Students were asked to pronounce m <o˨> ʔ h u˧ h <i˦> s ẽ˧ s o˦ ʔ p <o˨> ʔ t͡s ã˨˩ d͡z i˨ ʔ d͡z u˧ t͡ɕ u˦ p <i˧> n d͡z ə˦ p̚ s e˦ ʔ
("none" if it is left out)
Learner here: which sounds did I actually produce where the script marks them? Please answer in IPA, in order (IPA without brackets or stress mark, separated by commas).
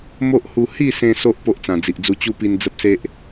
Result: o˦, i˥˧, o˦, i˧